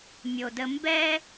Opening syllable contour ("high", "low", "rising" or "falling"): low